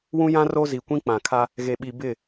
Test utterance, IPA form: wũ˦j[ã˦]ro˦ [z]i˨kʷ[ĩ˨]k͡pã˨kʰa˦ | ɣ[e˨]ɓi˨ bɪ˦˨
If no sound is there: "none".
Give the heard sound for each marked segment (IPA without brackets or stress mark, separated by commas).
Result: ã˦, z, ĩ˦, e˨